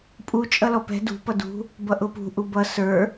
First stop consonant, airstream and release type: ejective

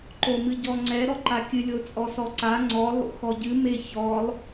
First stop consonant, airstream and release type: click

